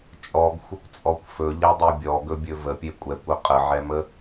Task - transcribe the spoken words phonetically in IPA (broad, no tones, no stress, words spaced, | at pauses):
t͡ʃʼɔɡxʷəkʷt͡sʼɔkʷ fɵʎɛdˤe bʲɔɡɵbʲɵ vəpʲe kʷʼɛkʷɵ qʼəʕɛmə